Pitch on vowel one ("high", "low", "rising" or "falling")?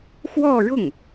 falling